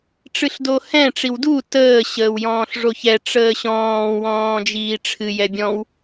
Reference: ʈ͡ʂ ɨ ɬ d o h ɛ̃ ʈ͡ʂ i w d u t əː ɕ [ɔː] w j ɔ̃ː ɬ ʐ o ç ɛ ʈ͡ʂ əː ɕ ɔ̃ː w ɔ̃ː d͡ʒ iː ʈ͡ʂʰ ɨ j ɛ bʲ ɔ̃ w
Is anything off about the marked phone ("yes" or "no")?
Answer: yes